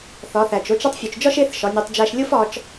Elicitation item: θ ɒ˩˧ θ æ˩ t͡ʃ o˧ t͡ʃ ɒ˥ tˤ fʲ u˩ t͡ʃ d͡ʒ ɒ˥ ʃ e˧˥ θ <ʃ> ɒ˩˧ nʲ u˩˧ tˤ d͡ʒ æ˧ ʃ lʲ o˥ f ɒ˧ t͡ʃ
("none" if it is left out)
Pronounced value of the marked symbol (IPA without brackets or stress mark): ʃ